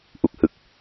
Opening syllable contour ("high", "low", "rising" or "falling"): low